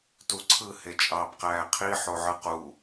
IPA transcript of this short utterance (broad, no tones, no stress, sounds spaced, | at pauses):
t u ǀʰ ɯ h e t͡ʃʼ ɑː b q æː qʰ i ħ o ʕ ɯ q u